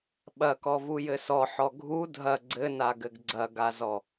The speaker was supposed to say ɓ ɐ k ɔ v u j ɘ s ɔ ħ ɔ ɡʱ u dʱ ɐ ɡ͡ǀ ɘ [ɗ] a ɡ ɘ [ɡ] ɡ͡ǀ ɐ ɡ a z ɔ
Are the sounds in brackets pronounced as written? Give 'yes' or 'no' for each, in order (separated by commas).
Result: no, yes